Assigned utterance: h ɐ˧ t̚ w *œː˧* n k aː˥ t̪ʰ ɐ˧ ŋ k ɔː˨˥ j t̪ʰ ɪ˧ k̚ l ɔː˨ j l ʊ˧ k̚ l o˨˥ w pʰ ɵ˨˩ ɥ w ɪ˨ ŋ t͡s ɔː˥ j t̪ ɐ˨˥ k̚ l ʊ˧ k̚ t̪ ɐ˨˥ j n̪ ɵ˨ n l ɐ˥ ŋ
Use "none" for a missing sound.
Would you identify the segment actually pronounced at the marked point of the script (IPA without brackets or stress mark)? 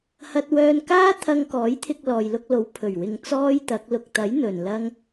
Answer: œː˧